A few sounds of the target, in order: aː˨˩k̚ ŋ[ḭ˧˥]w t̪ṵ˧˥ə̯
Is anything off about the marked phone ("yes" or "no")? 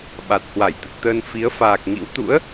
no